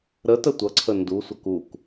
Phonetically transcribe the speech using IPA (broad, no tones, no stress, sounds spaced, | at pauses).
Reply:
ɾ ə t ə tʷ ʌ ǀʰ ə n d u sʷ ʌ k u k